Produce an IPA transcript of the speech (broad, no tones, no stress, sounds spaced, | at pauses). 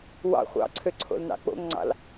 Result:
w ɑ̰ χʷ ɑ̰ ǀʰ ø ǀʰ o̰ l n ɑ̰ k͡p o̰ ŋ ŋ͡ǀ ɑ̰ l